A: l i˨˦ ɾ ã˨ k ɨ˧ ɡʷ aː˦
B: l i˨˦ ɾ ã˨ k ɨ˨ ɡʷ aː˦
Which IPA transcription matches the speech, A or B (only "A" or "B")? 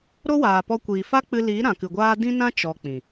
B